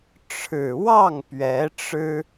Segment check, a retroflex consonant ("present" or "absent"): present